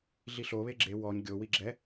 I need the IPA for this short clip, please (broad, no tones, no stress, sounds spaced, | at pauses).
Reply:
ɮ i ɬ o β e ɡ͡ǁ e w ɔ ɲ ɡʲ o w i ɡ͡ǁ ɛ